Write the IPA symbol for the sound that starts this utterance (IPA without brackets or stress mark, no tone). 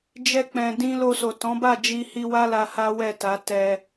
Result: d͡ʒ